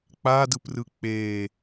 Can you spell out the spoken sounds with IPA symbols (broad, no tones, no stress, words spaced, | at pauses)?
k͡padɯprɯ k͡pe